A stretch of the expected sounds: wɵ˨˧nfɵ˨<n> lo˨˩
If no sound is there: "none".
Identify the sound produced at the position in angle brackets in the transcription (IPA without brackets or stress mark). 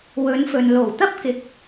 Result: n